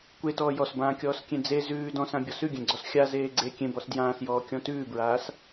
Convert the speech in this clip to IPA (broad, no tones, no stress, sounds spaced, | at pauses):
kʷ e t ɔː j ɔ s b ãː kʲ ɔː s kʲ ẽ d͡z e z ʉː d ɔ̃ s ã bʲ ɔ s ʉ ɡʲ ẽ ɡ͡ǀ ɔ s xʲ a z eː ɡ͡ǀ e kʲ ẽ b ɔ s d j ãː s j ɔː kʲ ɔ̃ t ʉː b ɹ aː s